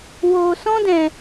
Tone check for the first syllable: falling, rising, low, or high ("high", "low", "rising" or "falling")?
low